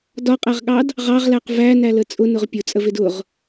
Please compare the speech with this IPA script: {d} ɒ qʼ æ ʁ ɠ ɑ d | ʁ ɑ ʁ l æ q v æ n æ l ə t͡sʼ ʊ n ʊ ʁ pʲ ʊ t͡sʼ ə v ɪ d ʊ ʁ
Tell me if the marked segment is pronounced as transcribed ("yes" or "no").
yes